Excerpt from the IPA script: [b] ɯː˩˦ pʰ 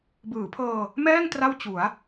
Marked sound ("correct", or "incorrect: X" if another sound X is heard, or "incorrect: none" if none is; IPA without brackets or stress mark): correct